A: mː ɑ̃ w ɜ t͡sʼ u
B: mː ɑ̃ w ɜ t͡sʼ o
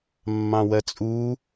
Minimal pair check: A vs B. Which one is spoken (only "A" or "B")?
A